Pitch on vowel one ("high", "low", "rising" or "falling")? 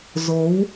rising